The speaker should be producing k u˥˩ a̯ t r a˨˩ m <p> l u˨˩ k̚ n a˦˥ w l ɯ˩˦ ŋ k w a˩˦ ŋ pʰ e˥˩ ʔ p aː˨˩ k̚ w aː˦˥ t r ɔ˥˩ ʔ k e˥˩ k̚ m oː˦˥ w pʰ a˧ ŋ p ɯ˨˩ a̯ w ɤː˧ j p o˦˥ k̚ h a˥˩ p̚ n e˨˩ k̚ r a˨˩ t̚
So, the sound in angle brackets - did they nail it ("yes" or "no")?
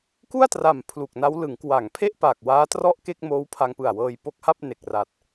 no